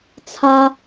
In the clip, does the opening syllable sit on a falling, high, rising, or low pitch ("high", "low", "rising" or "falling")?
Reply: high